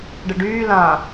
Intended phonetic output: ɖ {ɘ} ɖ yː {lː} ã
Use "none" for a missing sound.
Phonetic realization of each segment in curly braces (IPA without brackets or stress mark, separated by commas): ɘ, l